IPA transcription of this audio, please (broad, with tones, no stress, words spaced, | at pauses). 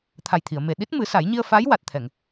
t̪ʰa˨˩jt̪ʰi˨˩˨ə̯me˨˩ ɗi˦˥t̚mɨ˨˩˦ sa˨˩˦jɲi˧ə̯ fa˧˥jwa˨˩t̚t̪ʰɛ˨˩˨ŋ